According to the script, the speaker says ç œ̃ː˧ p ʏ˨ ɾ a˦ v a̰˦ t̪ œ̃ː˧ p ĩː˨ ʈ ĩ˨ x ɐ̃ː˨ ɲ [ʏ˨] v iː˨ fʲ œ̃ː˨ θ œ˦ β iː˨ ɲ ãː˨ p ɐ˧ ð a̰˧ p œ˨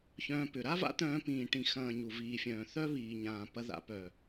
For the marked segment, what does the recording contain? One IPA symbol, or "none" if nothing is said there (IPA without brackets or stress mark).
u˨